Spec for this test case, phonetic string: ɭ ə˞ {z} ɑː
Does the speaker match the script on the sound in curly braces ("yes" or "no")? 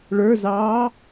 yes